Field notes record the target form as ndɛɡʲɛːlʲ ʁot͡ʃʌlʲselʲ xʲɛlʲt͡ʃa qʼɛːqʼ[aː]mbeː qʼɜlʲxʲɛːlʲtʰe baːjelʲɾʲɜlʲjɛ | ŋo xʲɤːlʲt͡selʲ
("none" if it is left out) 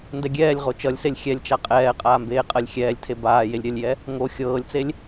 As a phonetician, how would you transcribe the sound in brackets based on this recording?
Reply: aː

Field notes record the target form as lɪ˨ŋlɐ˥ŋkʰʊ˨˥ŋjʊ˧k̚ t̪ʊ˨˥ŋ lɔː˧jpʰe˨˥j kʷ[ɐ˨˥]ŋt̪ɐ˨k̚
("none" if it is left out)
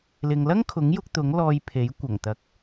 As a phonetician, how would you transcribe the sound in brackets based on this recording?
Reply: ɐ˨˩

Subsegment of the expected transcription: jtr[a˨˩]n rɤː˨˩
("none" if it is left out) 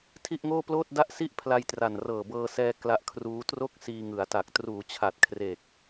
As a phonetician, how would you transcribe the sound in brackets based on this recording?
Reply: a˨˩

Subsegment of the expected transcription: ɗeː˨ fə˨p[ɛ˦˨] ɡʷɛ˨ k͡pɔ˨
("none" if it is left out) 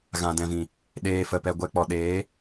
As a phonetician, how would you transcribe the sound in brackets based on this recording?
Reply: ɛ˨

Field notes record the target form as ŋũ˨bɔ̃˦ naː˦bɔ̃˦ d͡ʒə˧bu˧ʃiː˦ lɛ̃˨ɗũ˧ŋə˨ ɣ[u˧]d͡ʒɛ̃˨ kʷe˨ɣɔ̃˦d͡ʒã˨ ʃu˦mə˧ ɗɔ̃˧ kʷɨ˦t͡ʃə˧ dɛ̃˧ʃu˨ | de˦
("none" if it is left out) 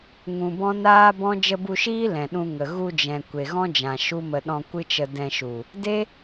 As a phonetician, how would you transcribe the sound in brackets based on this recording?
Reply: u˧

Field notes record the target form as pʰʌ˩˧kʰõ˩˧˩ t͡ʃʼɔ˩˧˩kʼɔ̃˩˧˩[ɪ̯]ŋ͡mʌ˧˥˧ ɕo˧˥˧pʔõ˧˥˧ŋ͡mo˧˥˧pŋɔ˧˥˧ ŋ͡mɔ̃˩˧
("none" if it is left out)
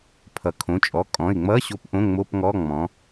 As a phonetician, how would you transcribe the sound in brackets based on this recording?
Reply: ɪ̯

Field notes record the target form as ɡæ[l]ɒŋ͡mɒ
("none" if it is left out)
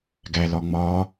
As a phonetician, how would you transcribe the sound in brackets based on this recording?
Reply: l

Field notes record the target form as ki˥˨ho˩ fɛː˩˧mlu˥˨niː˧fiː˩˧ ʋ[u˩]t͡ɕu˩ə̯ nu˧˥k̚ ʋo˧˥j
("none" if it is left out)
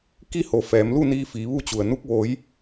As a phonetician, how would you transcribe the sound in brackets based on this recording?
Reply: u˥˨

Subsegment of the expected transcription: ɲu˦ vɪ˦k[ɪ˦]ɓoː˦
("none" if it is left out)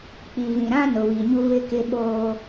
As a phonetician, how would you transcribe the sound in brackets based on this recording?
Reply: ɪ˦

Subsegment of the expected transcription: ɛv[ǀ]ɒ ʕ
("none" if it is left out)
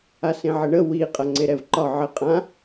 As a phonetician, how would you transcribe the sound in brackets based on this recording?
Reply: ǃ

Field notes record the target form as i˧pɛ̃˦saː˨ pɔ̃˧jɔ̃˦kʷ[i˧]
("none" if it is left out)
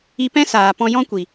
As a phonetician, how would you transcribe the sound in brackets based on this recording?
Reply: i˨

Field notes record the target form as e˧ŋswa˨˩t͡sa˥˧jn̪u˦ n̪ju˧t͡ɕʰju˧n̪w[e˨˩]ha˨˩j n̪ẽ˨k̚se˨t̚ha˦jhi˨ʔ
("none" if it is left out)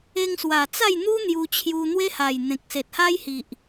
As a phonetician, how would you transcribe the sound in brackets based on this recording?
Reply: e˦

